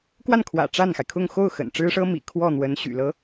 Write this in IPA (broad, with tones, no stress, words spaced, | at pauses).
kwa˥˩nkʰwä̰˨˩ ʈ͡ʂa˥˩nxa˩ɪ̯kʰʊ˥˧ŋ xo˥˩ʊ̯ xə̰˨˩n ʈ͡ʂɻ̩˥ʂɤ˥mḭ˨˩ kʰwɔ˥˩n̪wə˧˥n ɕy̰˨˩lɤ˧˥